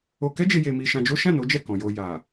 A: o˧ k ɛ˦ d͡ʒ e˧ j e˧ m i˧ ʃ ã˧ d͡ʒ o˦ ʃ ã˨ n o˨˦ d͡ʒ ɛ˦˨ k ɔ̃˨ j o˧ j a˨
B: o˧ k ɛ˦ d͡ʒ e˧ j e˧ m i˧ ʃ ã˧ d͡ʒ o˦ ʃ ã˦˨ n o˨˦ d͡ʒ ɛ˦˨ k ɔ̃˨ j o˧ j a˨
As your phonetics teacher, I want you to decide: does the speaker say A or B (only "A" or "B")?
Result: B